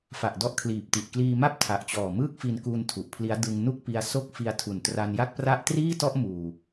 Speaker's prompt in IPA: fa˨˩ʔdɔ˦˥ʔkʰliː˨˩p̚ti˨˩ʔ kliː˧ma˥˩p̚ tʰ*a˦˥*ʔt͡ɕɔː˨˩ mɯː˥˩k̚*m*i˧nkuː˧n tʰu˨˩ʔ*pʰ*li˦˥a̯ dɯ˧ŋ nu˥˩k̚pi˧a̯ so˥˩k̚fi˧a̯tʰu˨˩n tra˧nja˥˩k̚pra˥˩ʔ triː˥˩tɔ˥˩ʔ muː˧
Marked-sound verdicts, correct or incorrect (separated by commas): incorrect, incorrect, correct